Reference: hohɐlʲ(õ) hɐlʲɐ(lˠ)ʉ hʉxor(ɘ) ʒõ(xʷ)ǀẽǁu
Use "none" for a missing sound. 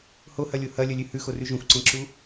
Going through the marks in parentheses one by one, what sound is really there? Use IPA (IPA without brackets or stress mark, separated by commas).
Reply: o, lʲ, ʉ, xʷ